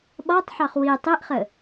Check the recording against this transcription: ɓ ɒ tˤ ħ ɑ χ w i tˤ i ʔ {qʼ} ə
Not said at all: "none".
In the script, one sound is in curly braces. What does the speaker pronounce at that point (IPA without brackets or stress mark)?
χ